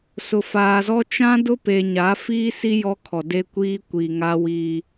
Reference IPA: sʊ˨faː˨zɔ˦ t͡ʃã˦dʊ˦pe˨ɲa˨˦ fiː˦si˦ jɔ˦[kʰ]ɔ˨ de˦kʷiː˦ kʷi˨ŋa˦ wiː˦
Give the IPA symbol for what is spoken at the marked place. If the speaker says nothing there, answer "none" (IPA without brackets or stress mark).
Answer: kʰ